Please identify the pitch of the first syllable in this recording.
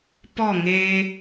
falling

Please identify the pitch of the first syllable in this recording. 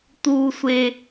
high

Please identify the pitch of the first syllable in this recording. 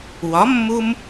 rising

